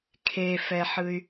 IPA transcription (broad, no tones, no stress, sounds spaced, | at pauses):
kʰ e f ɛ ħ ɯ y̯